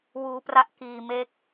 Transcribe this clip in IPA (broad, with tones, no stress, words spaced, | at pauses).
wuː˦˥pra˦˥ʔ kiː˧me˦˥k̚